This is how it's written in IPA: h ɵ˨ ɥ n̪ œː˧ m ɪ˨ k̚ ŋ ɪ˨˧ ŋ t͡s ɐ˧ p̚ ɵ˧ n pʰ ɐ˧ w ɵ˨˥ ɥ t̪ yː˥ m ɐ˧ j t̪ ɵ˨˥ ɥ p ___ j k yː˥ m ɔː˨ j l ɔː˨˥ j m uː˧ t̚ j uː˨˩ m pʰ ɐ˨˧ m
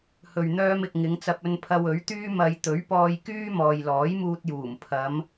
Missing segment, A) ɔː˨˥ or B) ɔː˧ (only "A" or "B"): B